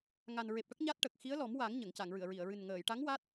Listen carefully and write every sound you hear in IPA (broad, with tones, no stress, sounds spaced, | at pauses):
ŋ a˨˩ n ɹ e˨˩ p̚ ʈ ə˦˥ k̚ ɲ a˦˥ t̚ ʈ ə˨˩ k̚ x i˧˥ ə̯ l ɔ˨˩˦ m w a˨˩˦ ŋ ɲ ə˨˩˨ ŋ c a˨˩˨ ŋ ɹ ɨ˨˩˨ ə̯ ɹ i˨˩˨ ə̯ ɹ ɨ˨˩ n ŋ əː˨˩˨ j ʈ a˧˥ ŋ w a˦˥ t̚